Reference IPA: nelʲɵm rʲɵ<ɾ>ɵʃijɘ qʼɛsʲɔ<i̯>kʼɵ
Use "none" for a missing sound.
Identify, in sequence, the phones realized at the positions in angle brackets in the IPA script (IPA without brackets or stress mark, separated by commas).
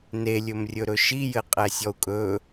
ɾ, u̯